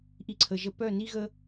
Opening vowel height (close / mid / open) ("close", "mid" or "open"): close